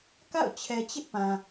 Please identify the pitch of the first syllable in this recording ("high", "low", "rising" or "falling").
falling